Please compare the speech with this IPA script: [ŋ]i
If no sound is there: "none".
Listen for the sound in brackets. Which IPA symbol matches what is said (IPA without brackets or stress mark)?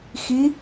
x